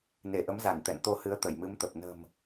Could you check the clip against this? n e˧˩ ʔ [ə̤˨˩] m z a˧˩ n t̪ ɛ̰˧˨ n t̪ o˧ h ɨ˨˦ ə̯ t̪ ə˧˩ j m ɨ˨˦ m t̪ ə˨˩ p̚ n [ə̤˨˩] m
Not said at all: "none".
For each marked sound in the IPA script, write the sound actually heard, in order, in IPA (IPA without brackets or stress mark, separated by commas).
ə˨˦, ə̤˨˩